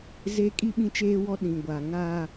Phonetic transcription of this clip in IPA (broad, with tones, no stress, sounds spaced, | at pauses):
z e˦ kʼ i˦ ɓ ĩ˦ t͡ʃ eː˦ w ɔ˦ ɗ ĩ˨ ɡʷ a˨ ŋ aː˦